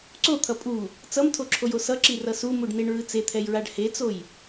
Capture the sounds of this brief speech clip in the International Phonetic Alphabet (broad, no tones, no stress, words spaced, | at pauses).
ǀot̪ʰʌ pʼu | t͡sʌmtʰoǁʰojo sʌǁirʌ sumuɖneɳɹɯ t͡set̪ʰɛjɹaɖ het͡soj